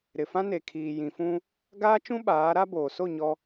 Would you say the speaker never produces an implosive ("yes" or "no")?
no